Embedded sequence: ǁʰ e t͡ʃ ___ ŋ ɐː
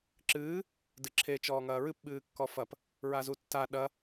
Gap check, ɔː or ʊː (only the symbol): ɔː